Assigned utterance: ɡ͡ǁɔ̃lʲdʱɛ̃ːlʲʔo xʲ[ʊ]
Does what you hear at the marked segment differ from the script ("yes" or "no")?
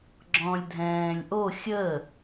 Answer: yes